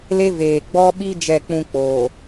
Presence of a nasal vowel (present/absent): present